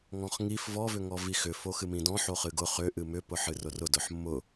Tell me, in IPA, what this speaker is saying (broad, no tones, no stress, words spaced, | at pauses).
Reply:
ŋɔ̃χŋif vɔ vʏŋɔvixʏ foxɨmĩdɔ̃ ħoχɨɡʊ χʏ ʔɨmʏ pʊħɨrʊrʊ dʊħmːʊ